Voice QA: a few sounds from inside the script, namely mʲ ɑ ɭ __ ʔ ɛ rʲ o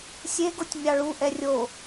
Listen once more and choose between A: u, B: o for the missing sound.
A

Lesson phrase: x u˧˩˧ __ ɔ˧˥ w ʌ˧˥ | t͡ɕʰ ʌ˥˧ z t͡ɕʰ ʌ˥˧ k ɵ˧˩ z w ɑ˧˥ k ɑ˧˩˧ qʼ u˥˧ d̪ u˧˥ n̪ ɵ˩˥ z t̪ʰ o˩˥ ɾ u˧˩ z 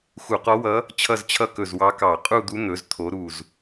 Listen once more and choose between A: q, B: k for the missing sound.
A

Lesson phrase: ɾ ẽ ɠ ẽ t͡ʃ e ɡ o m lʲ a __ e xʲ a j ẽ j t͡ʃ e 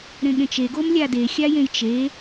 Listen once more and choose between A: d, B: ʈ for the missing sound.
A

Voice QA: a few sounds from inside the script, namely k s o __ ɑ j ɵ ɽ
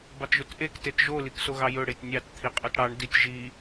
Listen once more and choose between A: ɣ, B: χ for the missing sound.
A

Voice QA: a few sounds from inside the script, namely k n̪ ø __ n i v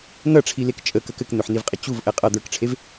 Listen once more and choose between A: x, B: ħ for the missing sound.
B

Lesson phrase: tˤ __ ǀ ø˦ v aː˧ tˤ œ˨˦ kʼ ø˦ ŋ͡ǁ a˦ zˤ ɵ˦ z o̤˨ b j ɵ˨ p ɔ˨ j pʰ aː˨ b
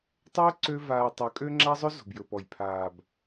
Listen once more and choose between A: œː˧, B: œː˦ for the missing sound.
B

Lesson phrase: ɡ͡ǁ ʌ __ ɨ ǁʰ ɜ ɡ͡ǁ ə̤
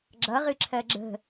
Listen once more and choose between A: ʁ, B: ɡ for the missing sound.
A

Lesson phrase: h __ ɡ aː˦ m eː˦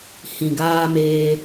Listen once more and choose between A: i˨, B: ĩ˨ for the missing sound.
B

